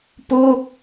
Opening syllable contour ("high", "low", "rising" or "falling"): falling